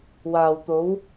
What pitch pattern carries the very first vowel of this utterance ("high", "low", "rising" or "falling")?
low